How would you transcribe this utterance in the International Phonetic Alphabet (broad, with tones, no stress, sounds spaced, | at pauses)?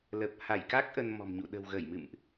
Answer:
l ə˨˩ p̚ h a˧˩ j k a˦˥ k̚ ʔ ə˧ n m ɔ̤˨˩ m ɲ ṵ˧˨ ɗ ə̤˨˩ w ɣ ə˧˩ j m ɨ̰˧˨ m ʔ